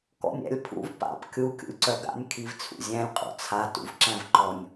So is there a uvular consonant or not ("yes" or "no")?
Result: yes